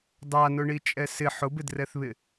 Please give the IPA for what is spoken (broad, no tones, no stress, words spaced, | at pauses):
dˤanʊɳi t͡ʃʼɛsɪ ħʊbɪdrɛθβɪ